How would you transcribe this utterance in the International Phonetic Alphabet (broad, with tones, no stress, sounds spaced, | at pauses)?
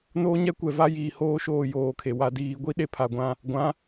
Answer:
n oː˦ ɲ ɛ˦ kʷ ɛ˨ v a˦ j iː˨ h oː˦ ʃ oː˦˨ j oː˨ kʰ e˨ w a˨ d iː˨ ɡʷ i˦ ɗ e˦ pʰ a˨ ɡʷ ã˦ | ɡʷ ã˨˦